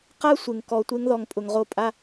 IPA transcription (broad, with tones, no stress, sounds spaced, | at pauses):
q a˦ sʷ ɪ˩ ŋ k ɔ˨ tʷ e˥ ŋ ð ɔ˨ ŋ pʼ ʊ˩ ŋ ʁ o˦ pʼ a˥